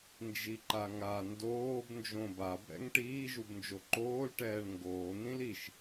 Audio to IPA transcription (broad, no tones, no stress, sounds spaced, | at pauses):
n d͡ʒ i ǃ a ŋ a n d oː b n d͡ʒ õ b a b ɾ ɛ̰ ŋ ʈ iː ʒ u b n d͡ʒ o ǃ oː l ʈ ɛː ɳ ŋ ɡ oː n̪ ĩ l i ʃ